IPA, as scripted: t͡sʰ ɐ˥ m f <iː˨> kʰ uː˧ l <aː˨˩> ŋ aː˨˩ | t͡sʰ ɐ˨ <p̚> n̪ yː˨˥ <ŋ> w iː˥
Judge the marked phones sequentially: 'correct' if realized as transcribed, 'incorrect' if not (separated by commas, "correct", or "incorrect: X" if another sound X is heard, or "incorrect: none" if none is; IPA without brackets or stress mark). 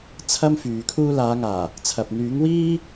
incorrect: yː˨, incorrect: aː˨˧, correct, correct